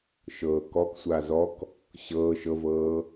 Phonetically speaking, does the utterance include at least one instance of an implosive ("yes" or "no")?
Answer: no